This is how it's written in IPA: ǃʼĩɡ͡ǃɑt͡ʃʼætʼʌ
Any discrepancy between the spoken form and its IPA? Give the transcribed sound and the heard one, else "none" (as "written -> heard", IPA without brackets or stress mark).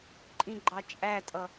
none